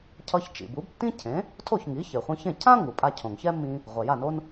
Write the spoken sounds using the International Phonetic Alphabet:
cʰ ʌ˧ ç t͡ʃ ḭ˩ b u˩˥ b tː ĩ˥ cʰ ẽ˩˥ | tʰ o˥˩ ç ŋ i˩˥ ç e˩ χʷ ĩ˧ ç ẽ˥˩ cʰ ã˥ ŋ u˩ pʼ a˧ cʰ õ˩ ŋ ç ɛ˥ mː ĩ˧ | ʁʷ ɛ˩ j a˥˩ n o˥ n

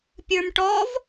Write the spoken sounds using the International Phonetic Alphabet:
pʲ ə˞ m ʈ ɔ v

